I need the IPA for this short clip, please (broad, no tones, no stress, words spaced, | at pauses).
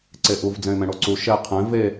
ǀeʔuv d͡zɛ̃ɪ̯mɛ̃ɽoǀu ʃɛ qʰɛ̃ ve